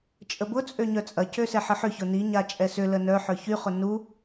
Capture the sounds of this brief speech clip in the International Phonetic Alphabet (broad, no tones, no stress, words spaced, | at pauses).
t͡ʃʼəbʊt͡sʼø ɲœt͡sʼɐcø sɛħəħʏçʊ ni ɲat͡ʃʼɛsʏlə nœħœ çyχʊ nu